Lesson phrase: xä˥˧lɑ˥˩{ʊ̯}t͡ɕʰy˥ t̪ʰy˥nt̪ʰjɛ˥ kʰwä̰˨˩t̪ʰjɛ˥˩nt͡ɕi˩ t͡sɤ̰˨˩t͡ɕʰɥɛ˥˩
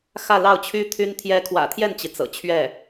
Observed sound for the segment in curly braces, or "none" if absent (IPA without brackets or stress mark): ʊ̯